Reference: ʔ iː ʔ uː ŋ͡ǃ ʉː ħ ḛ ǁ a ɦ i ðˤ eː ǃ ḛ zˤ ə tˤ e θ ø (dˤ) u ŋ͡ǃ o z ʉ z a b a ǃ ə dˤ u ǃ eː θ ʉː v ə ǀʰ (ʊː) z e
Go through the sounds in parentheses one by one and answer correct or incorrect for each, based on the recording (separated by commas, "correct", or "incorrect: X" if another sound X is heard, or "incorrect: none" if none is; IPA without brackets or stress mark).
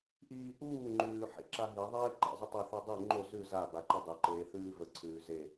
correct, incorrect: ʉː